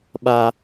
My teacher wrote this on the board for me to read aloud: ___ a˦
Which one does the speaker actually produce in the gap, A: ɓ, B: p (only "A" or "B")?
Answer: A